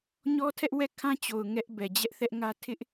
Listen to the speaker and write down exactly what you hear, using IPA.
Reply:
ɲɔ˦tʰɛ˦ʔ wɛ˦˨kʰã˦ t͡ɕo˨ʊ̯ ŋɛ˦ʔ bɛ˨ d͡ʑɛ˦ʔ θɛ˦ʔŋä˦ tʰɪ˦ʔ

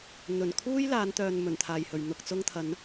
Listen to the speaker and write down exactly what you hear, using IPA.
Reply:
n̪ɵ˨˩nkʰuː˥j laː˨˧nt̪œː˨n mɵ˨˩nt̪ʰaː˨˩jhɵ˨˩ɥ n̪ʊ˧k̚t͡sʊ˥ŋt̪ʰɐ˨˥n

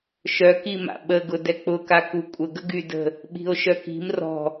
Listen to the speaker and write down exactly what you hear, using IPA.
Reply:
ʃœkima̰ ɓəɡʊ dɛk͡pʊka kukʷʼəɡə ɡydə̤ | ɓi̤o̯ʃœki̤m rɔ̤

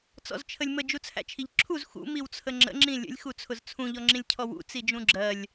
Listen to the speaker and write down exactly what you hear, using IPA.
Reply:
t͡sɔ̰zt͡ʃʰəlʲmə d͡ʒut͡sʰæ̰t͡ʃʰiʎǁʰuz xṵ miwt͡sʰəŋ͡ǁə̰ ŋ͡ǁĩlʲə̰lʲ xut͡sʰʊzt͡sʰũ ʎɔŋ͡ǁĩlʲcʰɔwṵ t͡sid͡ʒũɡ͡ǁɜlʲ

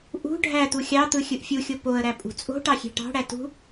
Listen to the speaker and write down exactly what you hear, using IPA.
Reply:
ʔṳ ɖʱæ t̪uxʲɑt̪ɯ xʲɯʔfʲuxʲo poə̯ɾæ pʼṳt͡sʼo̤ʈɑ xʲe̤ʈɑ̤ɽæ tṳ

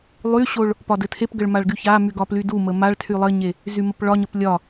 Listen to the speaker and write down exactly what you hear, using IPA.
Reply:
lˠyɕoɭ | pɒdɘtʰepɡəɭ maɭɡyçamy ɡɒplydumə maɭtʰy lˠɘɲe | zyməpɭɒɲəp lʲɒ

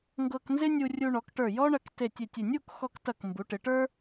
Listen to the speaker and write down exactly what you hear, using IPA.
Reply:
ŋɡɤ˧knzɪ˥ nʲu˧rʲu˧ɳɔ˩˧kʈə˞˧˩ jɔ˥ɳɐ˧k te˧˩tʲe˧˩tʲɪ˧˩ nʲu˥˧kxɔ˧ktɐ˧˩k mbu˩˧ʈɪ˩˧ʈə˞˥

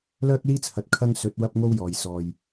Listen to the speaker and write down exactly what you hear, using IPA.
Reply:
lœː˥k̚liː˥t͡sʰɐ˨t̚ kʰɐ˧ŋ sɵ˨˥t̚ wɐ˥p̚ŋo˥wjɔː˨j sɔː˨j

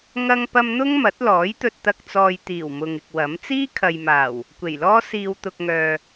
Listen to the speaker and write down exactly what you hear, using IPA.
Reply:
ŋɐ˧ŋpɐ˧m n̪ʊ˥ŋmɐ˨˥t̚lɔː˨˥jt̪ɵ˧t̚ t̪ɐ˧k̚t͡sɔː˨jt̪iː˨˩w mʊ˨ŋɪ˨k̚wɐ˨˥m t͡siː˥kʰɐ˨jmaː˨˩w | kʷe˨˩jlɔː˥ siː˨w t̪ʊ˨k̚ŋœː˨

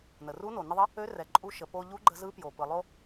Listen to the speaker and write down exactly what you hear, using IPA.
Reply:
nə˩ru˧˥no˩ nə˧ðˤə˧˥ | ø˧˥rɛ˩ǃʼu˧ ʃə˩po˧ʎu˧˥ ɡ͡ǃə˧zɯ˧˥pjo˩ pɯ˩lˠo˧

